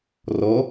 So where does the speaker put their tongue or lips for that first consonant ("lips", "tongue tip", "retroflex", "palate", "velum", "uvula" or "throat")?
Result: tongue tip